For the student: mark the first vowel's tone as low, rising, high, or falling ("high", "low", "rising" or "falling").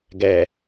low